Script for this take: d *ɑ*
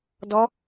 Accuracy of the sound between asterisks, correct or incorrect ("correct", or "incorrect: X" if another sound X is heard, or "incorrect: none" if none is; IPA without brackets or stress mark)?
incorrect: ɔ